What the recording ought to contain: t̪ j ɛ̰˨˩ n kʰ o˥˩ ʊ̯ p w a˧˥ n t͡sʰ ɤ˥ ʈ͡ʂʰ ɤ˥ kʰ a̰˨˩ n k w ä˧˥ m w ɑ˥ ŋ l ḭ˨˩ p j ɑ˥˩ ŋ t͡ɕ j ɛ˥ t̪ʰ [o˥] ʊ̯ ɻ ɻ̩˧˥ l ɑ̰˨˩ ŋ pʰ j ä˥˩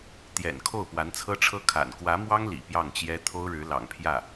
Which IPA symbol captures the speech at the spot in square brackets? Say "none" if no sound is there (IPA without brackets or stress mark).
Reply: o˥